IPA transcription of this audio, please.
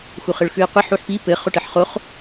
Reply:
x u χ ɘ ɭ x ʉ i̯ qʷ ɘ ħ u ħ p i p ɘ χ o ʈ ɘ ħ χ o χ

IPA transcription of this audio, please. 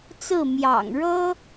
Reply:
t͡s ɹ̩˥˩ m j ɑ̰˨˩ ŋ ɻ ɤ˥

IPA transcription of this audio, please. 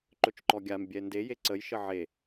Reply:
ǃ ɵ t͡ʃ ǃ ɔ ɡʲ a m bʲ ɛ n d e j e ǀ ə j ʃ ə ʕ e

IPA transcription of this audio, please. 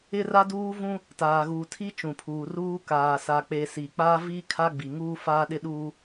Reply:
ɪ˦ r a˦ d uː˦ v ũ˦ | t aː˨ ɣ uː˨ tʰ i˦ t͡ʃ ũ˨ pʰ uː˨ r uː˦ k aː˨ s a˨ k͡p e˨ s iː˨ k͡p aː˦ v iː˦ kʰ a˦ ɡ͡b i˨ ŋ uː˦ f aː˦ ɗ ɪ˦ ɗ uː˦

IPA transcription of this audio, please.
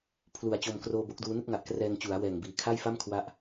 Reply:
pʰ l u˨˩ a̯ t͡ɕ o˧ m k r oː˧ b o˦˥ k̚ d uː˦˥ n ɯ˥˩ k̚ ŋ a˨˩ ʔ k r ɛː˧ ŋ t͡ɕ u˩˦ a̯ w ɛː˨˩ ŋ b iː˨˩ kʰ a˥˩ j f a˥˩ m kʰ w a˥˩ ʔ

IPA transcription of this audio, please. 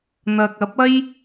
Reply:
n̪ ɐ˨ k̚ ɐ˨˥ p̚ ɐ˥ j

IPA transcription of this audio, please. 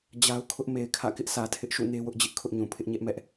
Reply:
d͡ʑ a˦ ʊ̯ kʰ ʊ˦ ʔ m e˨ ɪ̯ kʰ ä̰˦˨ k ɪ˦ ʔ s ä˨ tʰ ɪ˦ ʔ ʃ ṵ˦˨ n e˦ w ʊ˦ ʔ d͡ʑ ɪ˦ ʔ kʰ ʊ˦ ʔ ɲ ũ˨ pʰ ɪ˦ ʔ ɲ ɛ˦ ʔ m ɛ˦ ʔ

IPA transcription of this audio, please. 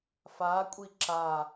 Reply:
f a kʷʼ i ǁ a

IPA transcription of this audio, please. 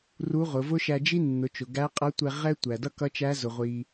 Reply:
r u˧˥ ʁ ʊ˩˧ v ʊ˥ ʃ æ˧ d͡ʒ i˥ nː ʊ˩˧ t͡ʃ ʊ˩ ɡ æ˧˥ qʼ ʌ˧˥ tʷ ɛ˧ ʁ ɛ˥ tʷ æ˩ d ʌ˥ k ʌ˧˥ t͡ʃ æ˧˥ z ʊ˩ ʁʷ i˩

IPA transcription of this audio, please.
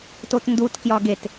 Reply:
t o t n d u t k j ɒ ɡ e t

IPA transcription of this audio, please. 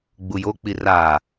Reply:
ɡ͡b u j o k͡p i r a

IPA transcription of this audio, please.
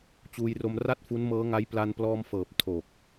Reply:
t͡ɕ uː˧ j r o˧ m r a˥˩ t̚ f u˦˥ n m ɤː˦˥ ŋ a˦˥ j p l a˧ n p l ɔː˧ m f ɤː˨˩ p̚ tʰ o˨˩ k̚

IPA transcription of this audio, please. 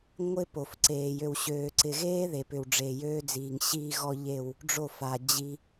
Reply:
ŋʷ ɪ˦ p o˨ f ǀ eː˨ j ø˨ w ɕ øː˨ ǀ ɪ˨ ɣ eː˦ ð e˨ p ʏ˨ w ɖ͡ʐ e˨ j øː˦ d͡z iː˨ ŋ ɕ iː˦ ɣ ɔ˦ ʎ e˦˨ w | ɖ͡ʐ o˦˨ f a˨ d͡ʑ i˦

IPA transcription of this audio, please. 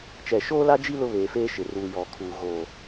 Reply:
t͡ʃ ɛ˨ ʃ oː˦ l a˦ d͡ʒ i˦ l ʊ˦ β eː˨ f eː˦ ʃ ɪ˨ r uː˨ j ɔ˨ kʰ uː˨ ɣ oː˨

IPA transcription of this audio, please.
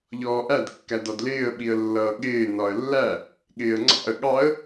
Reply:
ʎ ɔː ʔ æ d kː æ d ɒ d l ɪː ə̯ ɓ i ə̯ lː ʌː ɠ ɪː n ɒ ə̯ lː æ | ɠ ɪː ə̯ ŋ͡ǀ ɑ̰ ə̯ ɠ ɑ ə̯

